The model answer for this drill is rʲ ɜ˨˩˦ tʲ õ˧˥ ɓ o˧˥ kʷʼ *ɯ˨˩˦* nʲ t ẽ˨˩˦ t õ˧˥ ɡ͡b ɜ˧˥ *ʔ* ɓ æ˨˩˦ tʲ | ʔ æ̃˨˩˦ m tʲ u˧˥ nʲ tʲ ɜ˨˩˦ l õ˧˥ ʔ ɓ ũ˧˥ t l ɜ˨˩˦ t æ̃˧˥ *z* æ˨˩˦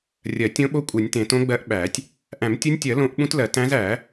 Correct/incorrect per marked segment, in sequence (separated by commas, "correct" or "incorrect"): correct, correct, correct